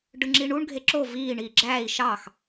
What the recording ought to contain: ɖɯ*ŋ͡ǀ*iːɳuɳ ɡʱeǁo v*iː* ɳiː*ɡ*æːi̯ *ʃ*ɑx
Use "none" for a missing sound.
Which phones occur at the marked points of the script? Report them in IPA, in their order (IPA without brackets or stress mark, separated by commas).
ŋ͡ǁ, iː, ɡ͡ǁ, ʃ